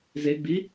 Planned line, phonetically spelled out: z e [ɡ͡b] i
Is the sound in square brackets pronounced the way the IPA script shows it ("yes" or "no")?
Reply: yes